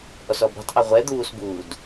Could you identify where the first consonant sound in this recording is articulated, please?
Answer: glottal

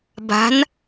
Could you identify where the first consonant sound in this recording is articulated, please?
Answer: labial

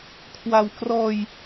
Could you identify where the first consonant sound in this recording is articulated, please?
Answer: velar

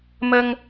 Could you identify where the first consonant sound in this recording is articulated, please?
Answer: labial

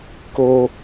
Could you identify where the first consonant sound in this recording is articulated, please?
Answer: velar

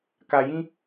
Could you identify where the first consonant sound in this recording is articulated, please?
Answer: velar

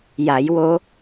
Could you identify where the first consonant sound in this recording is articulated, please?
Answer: palatal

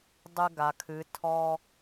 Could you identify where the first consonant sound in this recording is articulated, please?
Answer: alveolar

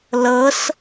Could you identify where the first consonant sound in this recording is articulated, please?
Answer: alveolar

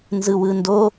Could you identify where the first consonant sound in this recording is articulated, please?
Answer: alveolar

